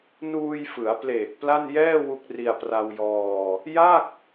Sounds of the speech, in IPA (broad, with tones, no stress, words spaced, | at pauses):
nuː˧jfɯ˩˦a̯pleː˨˩k̚ pla˥˩njɛː˥˩ wu˦˥k̚ri˧a̯pra˧wjɔː˧ | ja˥˩k̚